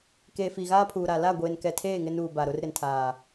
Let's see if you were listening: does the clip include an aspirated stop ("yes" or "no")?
yes